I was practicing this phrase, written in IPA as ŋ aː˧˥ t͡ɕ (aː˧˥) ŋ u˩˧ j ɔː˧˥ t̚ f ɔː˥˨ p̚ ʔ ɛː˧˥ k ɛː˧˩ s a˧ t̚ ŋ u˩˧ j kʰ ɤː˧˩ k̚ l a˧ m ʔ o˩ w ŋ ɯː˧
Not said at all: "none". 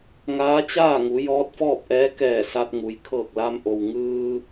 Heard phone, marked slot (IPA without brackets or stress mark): aː˥˨